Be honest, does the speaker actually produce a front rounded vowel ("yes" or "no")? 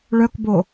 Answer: yes